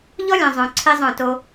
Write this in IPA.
ʎɔ˦lʲœ̃˨ zˤœ̃˨ ǀʰi˦zˤœ̃˦˨to˦

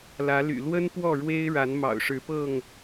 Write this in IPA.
lä˨˦ly̰˨˩ lwə˦n pwɔ˥˨ɻwe˦ɪ̯ ɻa˨˦nmɑ̰˨˩ʊ̯ʂɻ̩˨˦pɤ˥˨ŋ

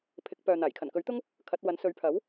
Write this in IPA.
pʰɪ˨˥k̚pœː˨n̪aː˨˩j kʰɐ˨˩nkɵ˨˥ɥt̪ʊ˥ŋ | kʰɐ˨˥t̚wɐ˨˥n sɵ˨˥ɥpʰɐ˨˥w

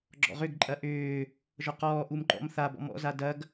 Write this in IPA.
ɡ͡ǁɔ̰ʁʏɡǃʼɐ ʔʏː | ʒɔqɔːʔum ǃɔ̰m θabɔ̰ mɔ̰za dɐɡ

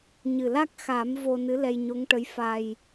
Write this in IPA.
ɲɨ˨˩la˦˥k̚ xa˨˩˦m vo˧nɨ˧˥ lɛ˧jɲo˧˥ŋʈə˧˥j fa˧j

